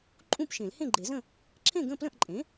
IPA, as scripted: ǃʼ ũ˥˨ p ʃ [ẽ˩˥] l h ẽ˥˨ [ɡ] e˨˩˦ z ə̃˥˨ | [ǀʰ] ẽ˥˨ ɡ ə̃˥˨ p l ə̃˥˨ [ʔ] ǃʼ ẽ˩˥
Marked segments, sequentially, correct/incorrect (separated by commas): incorrect, incorrect, incorrect, correct